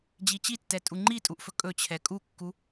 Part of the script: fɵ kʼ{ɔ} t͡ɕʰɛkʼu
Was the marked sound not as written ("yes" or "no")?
yes